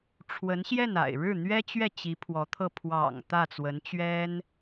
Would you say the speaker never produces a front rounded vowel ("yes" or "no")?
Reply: yes